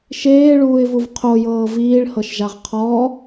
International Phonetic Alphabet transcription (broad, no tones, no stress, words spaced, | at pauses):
ʃeːɭuːɪ̯vuv qʰojɤː viːɭhɤʃʒaʁ qʰɔ